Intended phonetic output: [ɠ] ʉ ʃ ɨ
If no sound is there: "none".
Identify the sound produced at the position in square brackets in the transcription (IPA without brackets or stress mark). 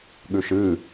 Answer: ɠ